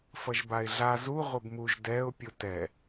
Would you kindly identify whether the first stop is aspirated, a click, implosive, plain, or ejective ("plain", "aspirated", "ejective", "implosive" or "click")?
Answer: plain